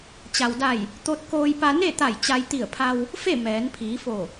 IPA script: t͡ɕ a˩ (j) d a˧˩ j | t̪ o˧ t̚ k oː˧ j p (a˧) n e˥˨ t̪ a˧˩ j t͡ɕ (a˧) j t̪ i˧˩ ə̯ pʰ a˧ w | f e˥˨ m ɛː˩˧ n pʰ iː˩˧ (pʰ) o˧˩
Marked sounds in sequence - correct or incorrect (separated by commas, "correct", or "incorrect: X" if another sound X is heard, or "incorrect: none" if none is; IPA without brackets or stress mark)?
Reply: incorrect: w, correct, correct, incorrect: f